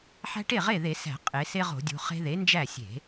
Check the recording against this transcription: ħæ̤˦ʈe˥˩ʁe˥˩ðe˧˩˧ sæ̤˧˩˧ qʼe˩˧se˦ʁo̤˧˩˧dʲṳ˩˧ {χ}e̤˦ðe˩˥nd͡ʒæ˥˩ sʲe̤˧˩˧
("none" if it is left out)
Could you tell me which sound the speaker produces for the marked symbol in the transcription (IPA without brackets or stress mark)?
χ